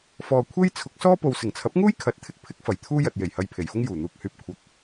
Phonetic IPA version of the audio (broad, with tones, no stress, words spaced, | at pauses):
fɔː˨kʷʰe˥j t͡sʰʊ˨˥k̚sɔː˥po˨w sɪ˨˩ŋt͡sʰɐ˨˥p̚ŋuː˥jkʰɐ˨˥t̚ t̪ʰɪ˥k̚pʰɪ˥k̚ fɐ˨˩jt̪ʰuː˥jɐ˨t̚ je˨˩jhɐ˧jpʰe˨˩jfʊ˥ŋ juː˨˩n̪uː˨k̚hyː˧p̚ kʷʰɐ˨k̚